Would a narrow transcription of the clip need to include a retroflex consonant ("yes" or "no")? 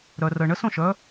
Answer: yes